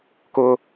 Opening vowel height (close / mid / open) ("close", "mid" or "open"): close